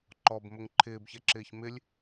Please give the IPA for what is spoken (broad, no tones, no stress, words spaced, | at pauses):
ǃɔbmʊŋ ǃʰɪːbçɛǁɪːç mɪlʲ